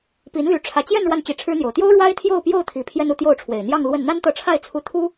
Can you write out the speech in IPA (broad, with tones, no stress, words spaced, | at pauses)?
pi˧˥nly˧˥ ʈ͡ʂʰä˨˩t͡ɕjɛ˥˧n ɻwa˥˩nt͡ɕi˧˥ʈ͡ʂʰɻ̩˥n̪jo˨˩ʊ̯ t̪jo˥ʊ̯ ɻwa˥ɪ̯t̪ʰjo˥˧ʊ̯pjo˥˩ʊ̯t̪ʰi˨˩ pʰjɛ˥nu˥˧t̪jo˥˩ʊ̯ʈ͡ʂʰwe˨˩ɪ̯ n̪jɑ˥˧ŋlwə˥˩n n̪a˥nt̪ɤ˧˥ʈ͡ʂʰa˥˩ɪ̯t͡sʰu˧˥ t̪ʰu˥